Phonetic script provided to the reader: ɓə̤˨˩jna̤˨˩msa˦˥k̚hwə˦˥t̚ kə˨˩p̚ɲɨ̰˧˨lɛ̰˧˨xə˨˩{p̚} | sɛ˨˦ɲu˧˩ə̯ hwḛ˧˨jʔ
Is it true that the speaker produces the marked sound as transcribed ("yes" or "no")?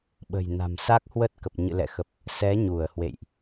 yes